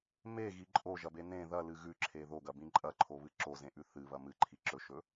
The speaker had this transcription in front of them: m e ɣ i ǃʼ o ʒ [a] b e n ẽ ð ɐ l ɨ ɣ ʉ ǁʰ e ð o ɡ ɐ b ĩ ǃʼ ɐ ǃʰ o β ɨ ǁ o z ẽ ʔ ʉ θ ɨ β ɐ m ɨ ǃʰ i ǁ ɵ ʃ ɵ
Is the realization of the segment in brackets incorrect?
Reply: yes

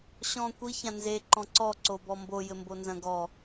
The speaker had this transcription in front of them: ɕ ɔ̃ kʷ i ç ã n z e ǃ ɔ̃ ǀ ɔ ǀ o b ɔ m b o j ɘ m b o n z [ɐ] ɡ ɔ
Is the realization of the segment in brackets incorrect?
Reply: yes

